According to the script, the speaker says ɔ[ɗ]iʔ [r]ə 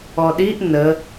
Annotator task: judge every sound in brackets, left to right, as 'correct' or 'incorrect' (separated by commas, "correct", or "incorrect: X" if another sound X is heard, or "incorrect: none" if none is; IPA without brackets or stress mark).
correct, incorrect: n